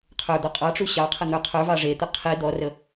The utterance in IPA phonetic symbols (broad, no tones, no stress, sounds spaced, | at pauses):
qʰ ə˞ d̪ ɔ qʼ ɑ ʈ͡ʂ u ɕ ɑ qʰ ə n̪ ə˞ qʰ ə˞ v ɑ ʐ e t̪ ə qʰ i d̪ ɔ r ə